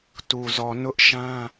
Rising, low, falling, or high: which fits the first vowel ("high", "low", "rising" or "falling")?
low